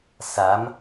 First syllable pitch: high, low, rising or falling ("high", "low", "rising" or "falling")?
rising